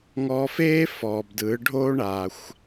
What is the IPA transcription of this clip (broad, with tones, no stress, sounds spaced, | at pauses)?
ŋ ɔ˧ f eː˥ f ɔː˩ b d ɯː˩˧ ɖʱ o˥ ɳ a˩ xʷ